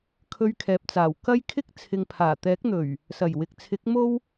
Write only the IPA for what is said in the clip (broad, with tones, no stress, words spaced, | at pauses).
kʰɵ˧ɥkʰɛː˨p̚t͡saː˨˩w kɐ˥jkʰɪ˥k̚ t͡sʰɪ˨ŋpʰaː˨˩t̪ɛː˨˥k̚n̪ɵ˨˩ɥ | sɐ˨˩jwɪ˨k̚t͡sʰɪ˨˥k̚ mo˥w